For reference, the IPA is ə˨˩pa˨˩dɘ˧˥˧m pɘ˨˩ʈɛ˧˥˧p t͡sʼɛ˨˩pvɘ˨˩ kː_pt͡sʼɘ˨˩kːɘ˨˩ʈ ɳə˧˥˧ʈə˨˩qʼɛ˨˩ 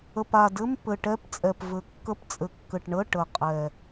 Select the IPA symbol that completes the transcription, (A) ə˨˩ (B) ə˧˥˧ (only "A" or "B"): B